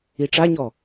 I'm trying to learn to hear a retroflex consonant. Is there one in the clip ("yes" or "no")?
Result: yes